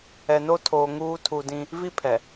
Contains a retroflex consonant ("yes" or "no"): no